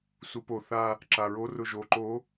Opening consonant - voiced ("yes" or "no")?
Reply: no